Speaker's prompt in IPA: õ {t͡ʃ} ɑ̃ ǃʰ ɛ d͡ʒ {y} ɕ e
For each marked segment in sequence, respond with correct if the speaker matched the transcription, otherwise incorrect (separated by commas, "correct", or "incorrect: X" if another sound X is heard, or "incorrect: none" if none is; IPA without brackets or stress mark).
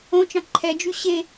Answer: correct, correct